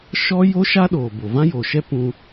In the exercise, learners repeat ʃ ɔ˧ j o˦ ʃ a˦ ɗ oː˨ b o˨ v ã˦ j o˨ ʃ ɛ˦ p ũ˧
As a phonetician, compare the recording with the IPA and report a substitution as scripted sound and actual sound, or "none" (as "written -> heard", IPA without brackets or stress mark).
ɔ˧ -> ɔ˦